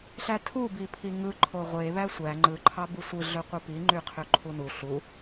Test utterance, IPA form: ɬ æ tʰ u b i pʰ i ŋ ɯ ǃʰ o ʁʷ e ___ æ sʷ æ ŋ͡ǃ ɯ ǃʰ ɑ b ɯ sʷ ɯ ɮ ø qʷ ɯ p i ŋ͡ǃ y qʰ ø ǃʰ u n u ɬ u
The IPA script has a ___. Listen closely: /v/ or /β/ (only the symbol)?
β